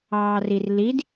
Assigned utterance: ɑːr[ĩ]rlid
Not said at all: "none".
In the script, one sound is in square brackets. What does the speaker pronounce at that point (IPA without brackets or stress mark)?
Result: i